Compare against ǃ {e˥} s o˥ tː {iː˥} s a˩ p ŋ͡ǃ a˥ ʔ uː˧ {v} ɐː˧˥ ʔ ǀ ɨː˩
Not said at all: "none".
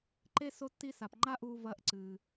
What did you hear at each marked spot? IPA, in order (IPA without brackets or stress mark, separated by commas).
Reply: e˥, i˥, v